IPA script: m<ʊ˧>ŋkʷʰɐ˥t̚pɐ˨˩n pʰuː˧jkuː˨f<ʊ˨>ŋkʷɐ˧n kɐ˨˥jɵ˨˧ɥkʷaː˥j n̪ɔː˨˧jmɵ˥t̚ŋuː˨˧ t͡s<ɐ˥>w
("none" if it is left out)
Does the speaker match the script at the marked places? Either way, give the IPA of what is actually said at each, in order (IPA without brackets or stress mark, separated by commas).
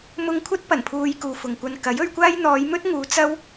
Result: ʊ˧, ʊ˨, ɐ˥